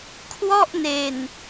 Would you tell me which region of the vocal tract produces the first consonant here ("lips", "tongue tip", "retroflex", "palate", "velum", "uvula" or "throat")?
velum